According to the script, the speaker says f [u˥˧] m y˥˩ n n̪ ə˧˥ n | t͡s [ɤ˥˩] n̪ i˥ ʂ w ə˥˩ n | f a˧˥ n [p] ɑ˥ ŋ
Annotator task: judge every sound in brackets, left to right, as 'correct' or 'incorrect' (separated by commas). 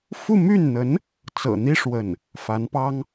correct, incorrect, correct